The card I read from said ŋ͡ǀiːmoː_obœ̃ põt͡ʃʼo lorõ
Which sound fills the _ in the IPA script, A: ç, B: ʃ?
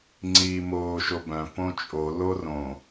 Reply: B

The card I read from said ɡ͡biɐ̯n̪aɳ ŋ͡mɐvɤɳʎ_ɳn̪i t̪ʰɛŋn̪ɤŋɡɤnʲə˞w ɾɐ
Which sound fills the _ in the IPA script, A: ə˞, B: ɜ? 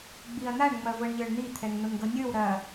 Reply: A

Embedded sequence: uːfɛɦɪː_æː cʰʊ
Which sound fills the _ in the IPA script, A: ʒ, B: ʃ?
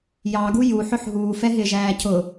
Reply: A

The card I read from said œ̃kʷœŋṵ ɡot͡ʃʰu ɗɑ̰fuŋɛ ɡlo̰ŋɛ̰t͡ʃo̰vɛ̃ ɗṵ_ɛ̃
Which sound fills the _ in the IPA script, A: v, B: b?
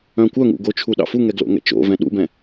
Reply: B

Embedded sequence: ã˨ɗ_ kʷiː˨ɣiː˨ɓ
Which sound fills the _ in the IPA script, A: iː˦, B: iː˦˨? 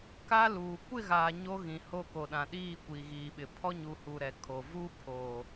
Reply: B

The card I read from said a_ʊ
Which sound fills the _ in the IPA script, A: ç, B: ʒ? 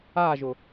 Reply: B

